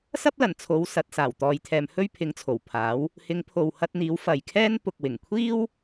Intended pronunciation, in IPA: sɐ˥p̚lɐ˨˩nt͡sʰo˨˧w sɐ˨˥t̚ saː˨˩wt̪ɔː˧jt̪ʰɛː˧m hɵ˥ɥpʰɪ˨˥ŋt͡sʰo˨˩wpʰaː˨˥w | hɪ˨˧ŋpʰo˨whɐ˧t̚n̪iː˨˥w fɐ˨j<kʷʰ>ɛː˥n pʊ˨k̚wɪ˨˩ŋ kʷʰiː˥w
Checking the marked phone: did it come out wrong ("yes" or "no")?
yes